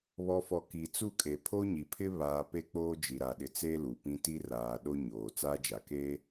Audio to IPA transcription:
β ɔ˨ f ɔ˨ k i˨ t͡s u˦˨ kʼ e˨ pʰ o˦ ɲ i˨ pʰ ɪ˦ β aː˨ p e˦ k͡p oː˦ d͡ʒ i˨ ɾ a˨ ɗ ɪ˨˦ t͡s eː˦ l u˨ p ĩ˦ t i˦ r aː˨ ɗ o˦ ɲ oː˨ t͡s aː˦ d͡ʒ a˨ k e˦

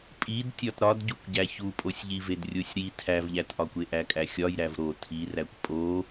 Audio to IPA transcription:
pʼ i d tʲ ɒ t ɾ ɒ d ɟ u kʷ ɟ æ ç u pʼ o sʲ ʎ i v e d rʲ o sʲ ɾ i tʰ æ v ʎ æ t ʔ ɒ kʷ e ʔ æ kʼ æ xʲ ɒ j ɾ æ v ɾ o tʰ i r æ kʷ pʼ o

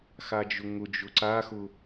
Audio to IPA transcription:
x a d͡ʒ ʊ ŋ ʊ d͡ʒ ʊ ǀ a x ʊ

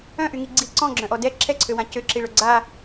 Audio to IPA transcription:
œ̃ ʔ y ŋ i ɡ͡ǀ i ǀ ɔ̃ ɡ͡ǁ œ̃ ʔ ɔ d ɛ ǁʰ ɛ ǀʰ ø w ã c ø ǁ i ɭ œ ɡ͡ǀ a

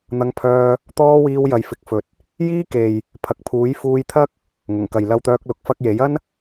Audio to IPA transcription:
n̪ ɐ˧ ŋ pʰ œː˧ | t̪ ɔː˥ w iː˧ w j ɐ˨˧ j f ɪ˨˥ k̚ f ɵ˨ t̚ | j iː˥ k e˨ j | pʰ ɐ˨ k̚ pʰ uː˨˥ j f uː˧ j t̪ʰ ɐ˥ k̚ | ŋ ʊ˨˩ ŋ k ɐ˨ j l ɐ˧ w t̪ œː˧ k̚ l ʊ˨˥ k̚ f ɐ˧ k̚ j e˨˥ j ɐ˥ n

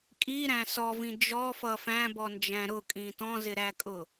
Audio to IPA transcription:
kʼ i ɾ æ̃ s ɔ v ĩ d͡ʒ ɔ f ʌ f æ̃ b ɔ n d͡ʒ æ̃ ɾ ʊ kʼ ĩ t ɔ̃ z ɪ ɾ æ kʼ ʊ

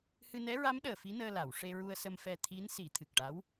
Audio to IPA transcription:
h ɨ˧ n ɛ˧˥ ɹ a˧˥ m ɗ əː˨˩ f i˧˥ n əː˧ l a˨˩˨ w ʂ e˧ ɹ u˧ ə̯ s ə˧ m f ɛ˧ t̪ʰ i˧˥ n s i˨˩˦ t̪ʰ ɨ˨˩ k̚ ʈ a˧˥ w

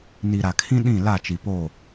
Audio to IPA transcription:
n i˨ ɾ a˨ kʰ ĩ˦ ɗ ĩ˦˨ l a˦˨ t͡ʃ i˨ p o˦˨

